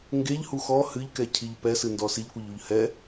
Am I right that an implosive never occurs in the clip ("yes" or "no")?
yes